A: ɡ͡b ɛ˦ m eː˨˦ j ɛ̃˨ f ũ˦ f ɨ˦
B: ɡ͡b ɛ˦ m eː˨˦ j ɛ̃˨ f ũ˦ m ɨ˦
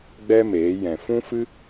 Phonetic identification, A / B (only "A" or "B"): A